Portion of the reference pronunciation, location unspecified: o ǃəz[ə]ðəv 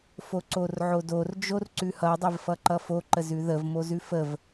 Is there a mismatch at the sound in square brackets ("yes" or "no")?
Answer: yes